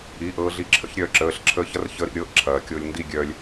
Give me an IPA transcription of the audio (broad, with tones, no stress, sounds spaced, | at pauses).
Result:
i˩˧˩ ʔ ɤː˧ ɮ i˧ ǁʰ ə̰˥˧ ç ɾʲ œː˧ ǁ əː˩˧˩ ɬ ǁʰ əː˧ ç ɐ˦˥ r ç ə˦˥ ɾ ḭ˧ ɾʲ ɤ˦˥ ʔ ǁʰ ɐː˩ kʲ o˧ lʲ n d i˥˧ ɡʲ œː˧ lʲ